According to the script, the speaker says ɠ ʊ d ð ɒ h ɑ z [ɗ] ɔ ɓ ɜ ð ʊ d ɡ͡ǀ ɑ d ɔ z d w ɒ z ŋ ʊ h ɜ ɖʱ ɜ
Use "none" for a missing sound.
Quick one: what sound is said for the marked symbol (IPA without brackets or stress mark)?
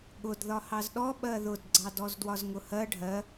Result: ɗ